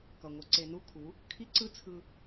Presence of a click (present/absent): present